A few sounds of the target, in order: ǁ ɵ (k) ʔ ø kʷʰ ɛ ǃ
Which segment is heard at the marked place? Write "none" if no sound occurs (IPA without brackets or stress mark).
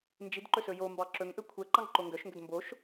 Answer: ŋ